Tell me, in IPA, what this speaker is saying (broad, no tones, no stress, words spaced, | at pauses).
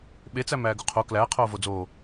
ɓet͡sæm æːɡuqʰo klæːqʰoːvo d͡zoː